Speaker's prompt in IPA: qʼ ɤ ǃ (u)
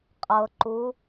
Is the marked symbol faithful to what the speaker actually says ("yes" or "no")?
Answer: yes